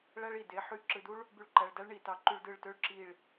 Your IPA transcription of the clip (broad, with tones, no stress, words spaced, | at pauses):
ɭæ˦ɭi˩de˨˦ ħy˧˩ ǁɯ˩˧˩du˦ɭ | by˧˩˧ɭǃæ˩˧˩ɭdæ˦ɭ ɳi˩tɑ˨˦ǃy˧˩˧ɭ dɯ˧˩ɭtø˦ɭǁi˧˩ɭ